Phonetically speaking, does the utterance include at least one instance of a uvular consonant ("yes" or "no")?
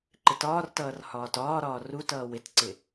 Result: no